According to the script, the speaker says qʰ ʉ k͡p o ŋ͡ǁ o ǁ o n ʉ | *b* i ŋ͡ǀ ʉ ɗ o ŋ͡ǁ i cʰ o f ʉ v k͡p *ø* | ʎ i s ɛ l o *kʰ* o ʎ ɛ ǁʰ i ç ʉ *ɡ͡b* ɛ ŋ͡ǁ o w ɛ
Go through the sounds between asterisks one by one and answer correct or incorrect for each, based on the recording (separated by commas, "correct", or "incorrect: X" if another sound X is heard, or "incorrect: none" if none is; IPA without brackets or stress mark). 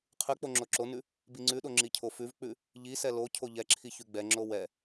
correct, incorrect: ʉ, incorrect: cʰ, correct